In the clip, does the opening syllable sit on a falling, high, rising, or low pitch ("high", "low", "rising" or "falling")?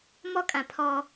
high